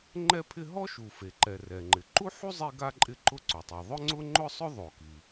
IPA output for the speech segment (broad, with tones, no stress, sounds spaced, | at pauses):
ŋ͡ǃ ɛ˥ pʰ ɪ˥ ɦ ɔ˥ ʃ u˩ f e˩ ǃ ɛ˩ r ɛ˩ ŋ͡ǃ ɪ˩ ǃ u˥ ħ u˥ zˤ e˥ ɡ a˥ ǃʼ ɪ˥ ǃ ʊ˥ ǀ o˩ tˤ i˩ ðˤ ʊ˥ ŋ͡ǀ ʊ˥ ŋ͡ǃ ʊ˥ sˤ ʊ˥ ðˤ o˩ k i˩